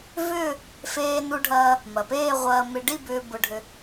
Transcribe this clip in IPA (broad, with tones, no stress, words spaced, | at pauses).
vʏː˥˧ | feː˧nu˧ɖʱɐː˧ | mɐ˩peː˥˧ʁʷɐː˧ mɪ˧ɖi˥˧bʏː˧ bʊ˧ɖʱʏ˧